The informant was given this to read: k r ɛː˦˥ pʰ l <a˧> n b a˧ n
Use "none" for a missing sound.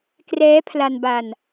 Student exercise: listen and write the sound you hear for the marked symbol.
a˧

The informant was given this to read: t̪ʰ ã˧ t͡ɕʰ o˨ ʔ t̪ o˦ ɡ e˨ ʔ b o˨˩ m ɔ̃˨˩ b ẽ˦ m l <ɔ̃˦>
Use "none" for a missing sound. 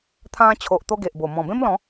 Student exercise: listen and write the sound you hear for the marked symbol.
ɔ̃˨˦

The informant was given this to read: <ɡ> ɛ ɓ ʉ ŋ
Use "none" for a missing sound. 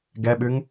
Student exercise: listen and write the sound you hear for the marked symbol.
ɡ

